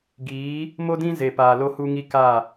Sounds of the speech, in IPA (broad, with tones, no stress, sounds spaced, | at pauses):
ɡ iː˨˦ | m o˦ d ĩ˦ z e˨ p aː˨ l o˦ h u˦ ŋ i˦ k a˦˨